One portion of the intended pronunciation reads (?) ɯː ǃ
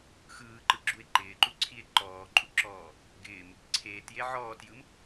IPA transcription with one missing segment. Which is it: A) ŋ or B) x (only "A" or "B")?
B